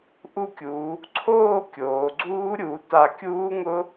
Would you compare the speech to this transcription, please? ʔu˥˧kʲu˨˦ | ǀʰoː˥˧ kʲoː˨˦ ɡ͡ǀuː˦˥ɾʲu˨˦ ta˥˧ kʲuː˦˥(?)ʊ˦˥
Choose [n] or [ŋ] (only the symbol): ŋ